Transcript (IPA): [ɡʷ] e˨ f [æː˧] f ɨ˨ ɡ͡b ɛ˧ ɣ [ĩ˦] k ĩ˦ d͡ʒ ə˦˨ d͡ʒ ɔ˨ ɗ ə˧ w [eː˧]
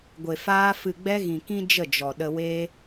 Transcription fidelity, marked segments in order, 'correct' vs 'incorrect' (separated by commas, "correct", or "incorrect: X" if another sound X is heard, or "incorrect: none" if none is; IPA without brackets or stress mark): correct, incorrect: aː˧, incorrect: ĩ˨, correct